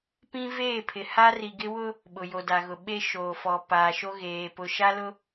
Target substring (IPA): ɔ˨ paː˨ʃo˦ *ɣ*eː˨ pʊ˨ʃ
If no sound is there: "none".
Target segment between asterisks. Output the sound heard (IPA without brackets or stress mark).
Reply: ɣ